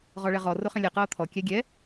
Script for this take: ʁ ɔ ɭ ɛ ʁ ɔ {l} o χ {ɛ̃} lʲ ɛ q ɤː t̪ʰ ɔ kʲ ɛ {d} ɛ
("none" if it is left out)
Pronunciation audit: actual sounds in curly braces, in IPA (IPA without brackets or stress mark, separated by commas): r, ɛ̃, ɡʲ